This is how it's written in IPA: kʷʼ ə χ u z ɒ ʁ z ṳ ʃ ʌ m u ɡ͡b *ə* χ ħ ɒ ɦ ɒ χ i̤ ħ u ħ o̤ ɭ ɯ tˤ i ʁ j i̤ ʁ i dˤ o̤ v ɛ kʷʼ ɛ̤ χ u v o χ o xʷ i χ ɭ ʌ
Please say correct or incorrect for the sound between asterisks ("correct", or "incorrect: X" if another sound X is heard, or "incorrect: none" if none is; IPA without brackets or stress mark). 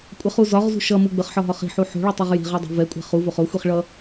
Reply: correct